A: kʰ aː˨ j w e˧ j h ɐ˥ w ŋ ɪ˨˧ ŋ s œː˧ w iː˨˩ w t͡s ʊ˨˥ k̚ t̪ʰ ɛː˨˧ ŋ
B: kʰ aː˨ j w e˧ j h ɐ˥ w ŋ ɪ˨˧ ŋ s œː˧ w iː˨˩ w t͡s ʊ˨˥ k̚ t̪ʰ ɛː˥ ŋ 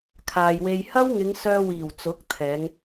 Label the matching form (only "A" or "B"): A